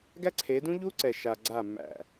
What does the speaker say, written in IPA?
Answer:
ɡæ˦ǀʰe˨˦dũ˦ʎu˦ ǀɛ˨ʃa˨ ɡ͡ǀa˦˨mːæ̰˦˨

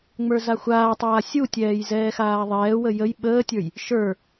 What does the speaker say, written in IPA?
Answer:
ŋ͡mə˞zaxʷaːtˤaː sʲutʲɛːj zɛːxaːðˤɛːwə jəj ɓəːtʲə˞j | ʃə˞

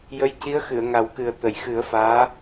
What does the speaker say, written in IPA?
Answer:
jə˧˥jci˧˥ə̯ xɨ˨˩˨ə̯ŋa˨˩˦wkɨ˨˩ə̯ t̪ə˨˩˨jxɨ˨˩˦ə̯faː˧˥

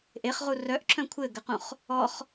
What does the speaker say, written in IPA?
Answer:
ʔeχʁu rœʔǁʰœ̃ kʷʰɘɡɘqũχ | ɔχ

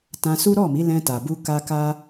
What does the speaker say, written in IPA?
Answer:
tã˧su˦ ɾɔ˦˨mi˨˦lɛ̃˧ta˨ bu˧ka˧ka˦

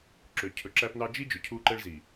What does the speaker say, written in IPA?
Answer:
ǁø˨cʰɵ˨ǁæ˦pnɑ˦ d͡ʒi˦ d͡ʒɵ˨cʰu˦ǃɛ˦ɭzi˨

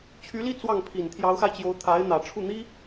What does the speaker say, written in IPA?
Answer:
t͡ɕʰy˧˥li˥˧ t͡swɑ˥˩ŋpʰi˨˩n t̪ʰjɑ˧˥ʊ̯xa˧ɪ̯t͡ɕjo˧˥ʊ̯ t̪ʰa˧˥ɪ̯n̪ä˨˩ ʈ͡ʂʰu˥˩n̪i˥

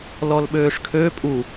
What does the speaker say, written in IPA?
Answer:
lɔlɓøːʂkʰø pʼu

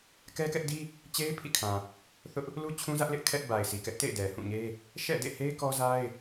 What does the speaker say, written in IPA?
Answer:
kɛ˦kɛ˦ʔdi˦ | t͡ɕe˦ɪ̯ pʰḭ˦˨kʰã˨ | θʊ˦ʔ | lu˦t͡ɕʰũ˦zä˦ʔlɪ˦ʔ kʰɛ˦ʔ ba˨ɪ̯si˨kɛ˦ʔ tḛ˦˨ɪ̯ dɛ˨hũ˦˨ɲe˦ | ʃɛ̰˦˨dḛ˦˨he˦ɪ̯ kɔ˦za˦ɪ̯

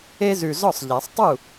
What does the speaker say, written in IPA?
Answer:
e˦zʉ˨˩zɔ˥˩sˤʎæ˨˩˦sˤ tˤu˥˩

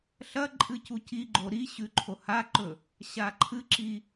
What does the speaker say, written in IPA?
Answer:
ɬɐ ǃʼɨcuciɡ͡ǃo ɾi ɕʉǃʰohaǃɵ | ɕaǃʰɨǁi

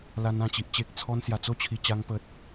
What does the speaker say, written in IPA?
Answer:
la˧nã˨˩t͡ɕi˨ʔ t͡ɕe˨k̚t͡sʰɔ˧n sja˨˩t͡so˥˧t͡ɕʰi˨˩t͡ɕa˧ŋ pə˨t̚

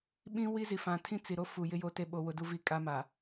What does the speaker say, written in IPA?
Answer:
ɓĩ˦wi˦zi˨fã˨ tʰĩ˦t͡si˨ɾo˦ fu˨jɪ˦jo˦te˦ ɓo˨wʊ˨du˨ vi˨ kʼa˦ma˨

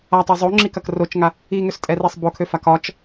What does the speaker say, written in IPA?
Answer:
atˤe zˤoŋ͡ǁikɐk rot͡ʃŋa | iŋøstʼɛrisˤ bokʰøfa kɒt͡ʃ

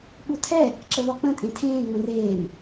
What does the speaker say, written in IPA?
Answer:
ɓutʰɛ | ǁəvɒk͡pə̃ tʼẽtʰẽː ŋ͡mə̃reːm

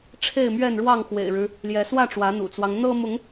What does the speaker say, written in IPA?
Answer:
ʈ͡ʂʰe˥˨ɪ̯mɥɛ˥˨nɻwɑ˥˨ŋ xwḛ˨˩ɪ̯ɻɻ̩˦ | ljɛ˨˦swä˥˨ ʈ͡ʂwä˨˦n̪ṵ˨˩t͡swɑ˦ŋ n̪ɤ˦ mʊ˨˦ŋ

